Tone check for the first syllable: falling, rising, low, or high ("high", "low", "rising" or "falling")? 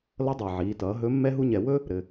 rising